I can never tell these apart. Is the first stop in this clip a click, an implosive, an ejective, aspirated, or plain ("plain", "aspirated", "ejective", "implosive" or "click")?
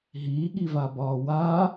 implosive